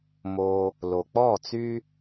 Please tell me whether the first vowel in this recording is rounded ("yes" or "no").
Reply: yes